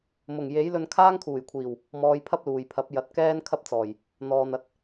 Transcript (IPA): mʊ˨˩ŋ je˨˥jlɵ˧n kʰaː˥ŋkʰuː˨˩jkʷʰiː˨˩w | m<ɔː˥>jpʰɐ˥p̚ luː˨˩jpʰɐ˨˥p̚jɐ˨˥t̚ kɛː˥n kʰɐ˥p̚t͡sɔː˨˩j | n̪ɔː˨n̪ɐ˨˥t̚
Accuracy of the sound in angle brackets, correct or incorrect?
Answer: incorrect: ɔː˨˧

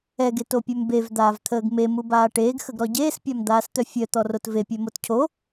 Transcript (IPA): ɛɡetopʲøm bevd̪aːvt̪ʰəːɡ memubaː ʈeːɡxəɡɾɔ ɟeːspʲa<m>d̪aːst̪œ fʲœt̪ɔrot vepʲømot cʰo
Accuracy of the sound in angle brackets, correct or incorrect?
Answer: correct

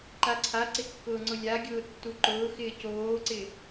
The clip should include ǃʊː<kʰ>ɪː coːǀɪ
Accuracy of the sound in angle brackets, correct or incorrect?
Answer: incorrect: x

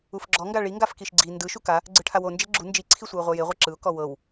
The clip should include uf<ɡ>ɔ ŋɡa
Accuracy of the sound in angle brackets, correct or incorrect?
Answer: incorrect: ɡ͡ǁ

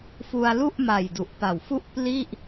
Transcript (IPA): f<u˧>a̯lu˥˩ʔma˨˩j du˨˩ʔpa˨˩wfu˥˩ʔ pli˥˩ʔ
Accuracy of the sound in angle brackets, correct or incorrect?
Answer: correct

